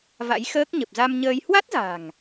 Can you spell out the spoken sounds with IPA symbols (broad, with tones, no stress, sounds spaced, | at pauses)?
v a̰˧˥ j x əː˦˥ k̚ ɲ ə˨˩ p̚ z a˧ m ɲ əː˧ j h w a˦˥ t̚ z a̤˨˩ ŋ